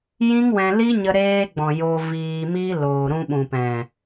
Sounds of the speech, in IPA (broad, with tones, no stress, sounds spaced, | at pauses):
j ĩ˦ ŋ w ɛ̃˧ l i˦ ɲ ə˧ ɾ eː˧ ɡ͡b ɔ̃˨ j o˧ v iː˧ m i˦ l oː˨ ɾ ũ˧ ɓ ũ˨ p ɛ̃˨